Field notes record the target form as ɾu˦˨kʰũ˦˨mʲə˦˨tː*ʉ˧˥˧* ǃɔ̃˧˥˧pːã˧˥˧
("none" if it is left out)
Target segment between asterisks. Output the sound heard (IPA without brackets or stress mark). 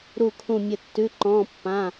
ʉ˧˥˧